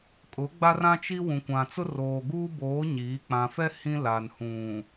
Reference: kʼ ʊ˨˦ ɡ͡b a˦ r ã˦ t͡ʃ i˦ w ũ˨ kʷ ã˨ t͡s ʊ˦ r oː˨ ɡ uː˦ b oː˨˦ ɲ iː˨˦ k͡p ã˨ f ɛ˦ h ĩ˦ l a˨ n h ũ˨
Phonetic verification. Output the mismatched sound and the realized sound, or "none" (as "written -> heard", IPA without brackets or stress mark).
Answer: none